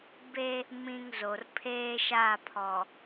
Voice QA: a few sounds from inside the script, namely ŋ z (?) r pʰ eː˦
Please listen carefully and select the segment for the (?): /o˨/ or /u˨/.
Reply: o˨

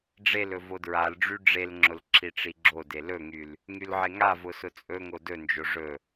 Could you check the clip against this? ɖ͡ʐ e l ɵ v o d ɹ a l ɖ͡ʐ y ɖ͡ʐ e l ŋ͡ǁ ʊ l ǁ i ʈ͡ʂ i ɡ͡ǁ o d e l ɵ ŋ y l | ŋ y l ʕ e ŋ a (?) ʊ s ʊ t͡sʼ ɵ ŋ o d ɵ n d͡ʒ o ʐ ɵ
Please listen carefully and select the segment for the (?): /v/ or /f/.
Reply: v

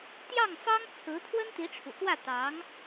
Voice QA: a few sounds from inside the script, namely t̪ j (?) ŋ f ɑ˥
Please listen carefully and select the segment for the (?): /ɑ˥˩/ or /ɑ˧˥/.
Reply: ɑ˥˩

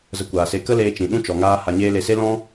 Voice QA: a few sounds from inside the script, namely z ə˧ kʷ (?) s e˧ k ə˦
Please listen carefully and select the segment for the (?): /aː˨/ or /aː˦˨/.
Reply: aː˨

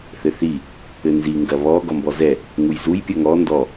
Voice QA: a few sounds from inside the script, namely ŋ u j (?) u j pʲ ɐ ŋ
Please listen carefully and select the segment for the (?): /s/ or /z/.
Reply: z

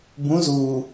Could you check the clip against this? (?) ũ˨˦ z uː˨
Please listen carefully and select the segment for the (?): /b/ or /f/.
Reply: b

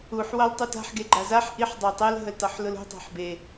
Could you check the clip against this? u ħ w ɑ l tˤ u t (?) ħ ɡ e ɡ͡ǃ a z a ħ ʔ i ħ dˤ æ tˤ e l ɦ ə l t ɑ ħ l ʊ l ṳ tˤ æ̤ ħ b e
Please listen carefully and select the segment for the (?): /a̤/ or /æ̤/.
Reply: a̤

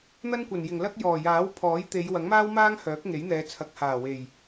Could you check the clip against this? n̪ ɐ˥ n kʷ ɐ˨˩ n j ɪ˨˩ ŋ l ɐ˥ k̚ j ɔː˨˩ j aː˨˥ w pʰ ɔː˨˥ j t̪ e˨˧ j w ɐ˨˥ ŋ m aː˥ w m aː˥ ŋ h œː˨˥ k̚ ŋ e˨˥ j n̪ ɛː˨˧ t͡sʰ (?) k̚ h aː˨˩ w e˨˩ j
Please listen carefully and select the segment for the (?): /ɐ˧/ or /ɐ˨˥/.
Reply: ɐ˨˥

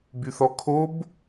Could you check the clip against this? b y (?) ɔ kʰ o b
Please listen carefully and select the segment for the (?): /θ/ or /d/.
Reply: θ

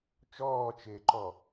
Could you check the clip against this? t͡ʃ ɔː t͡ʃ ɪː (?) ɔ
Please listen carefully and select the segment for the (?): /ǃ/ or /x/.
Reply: ǃ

